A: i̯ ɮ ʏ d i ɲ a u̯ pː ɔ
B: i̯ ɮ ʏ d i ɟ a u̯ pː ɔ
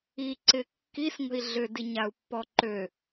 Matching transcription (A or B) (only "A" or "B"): A